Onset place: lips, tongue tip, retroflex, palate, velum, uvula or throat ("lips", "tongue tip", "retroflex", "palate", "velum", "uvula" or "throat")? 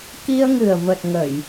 velum